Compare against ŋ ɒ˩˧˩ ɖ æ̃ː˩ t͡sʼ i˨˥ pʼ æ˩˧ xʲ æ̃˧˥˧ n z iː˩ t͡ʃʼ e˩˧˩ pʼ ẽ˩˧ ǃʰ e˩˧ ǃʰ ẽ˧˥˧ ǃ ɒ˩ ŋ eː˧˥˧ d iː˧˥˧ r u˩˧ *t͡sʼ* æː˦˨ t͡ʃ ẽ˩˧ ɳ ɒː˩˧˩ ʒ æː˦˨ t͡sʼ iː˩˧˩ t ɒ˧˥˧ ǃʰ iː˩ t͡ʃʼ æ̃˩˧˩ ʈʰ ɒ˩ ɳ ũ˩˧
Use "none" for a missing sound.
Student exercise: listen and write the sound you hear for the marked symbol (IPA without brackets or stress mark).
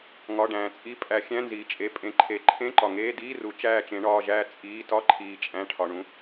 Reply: t͡ʃ